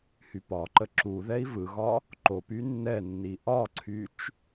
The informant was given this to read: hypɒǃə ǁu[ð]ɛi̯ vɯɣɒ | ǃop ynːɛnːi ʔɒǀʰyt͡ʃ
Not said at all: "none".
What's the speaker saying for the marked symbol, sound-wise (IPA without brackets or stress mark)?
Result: ð